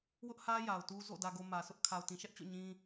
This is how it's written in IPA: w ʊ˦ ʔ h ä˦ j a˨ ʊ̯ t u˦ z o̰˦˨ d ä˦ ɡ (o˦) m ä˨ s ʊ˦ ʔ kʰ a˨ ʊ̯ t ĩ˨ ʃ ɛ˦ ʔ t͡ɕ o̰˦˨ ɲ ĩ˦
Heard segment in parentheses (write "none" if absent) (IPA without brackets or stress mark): o˦